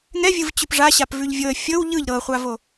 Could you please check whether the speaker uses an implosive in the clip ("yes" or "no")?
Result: no